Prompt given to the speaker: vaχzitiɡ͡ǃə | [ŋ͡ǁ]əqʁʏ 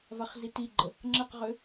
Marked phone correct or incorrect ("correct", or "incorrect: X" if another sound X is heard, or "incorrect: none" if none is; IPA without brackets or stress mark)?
correct